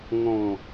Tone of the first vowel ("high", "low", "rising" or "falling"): falling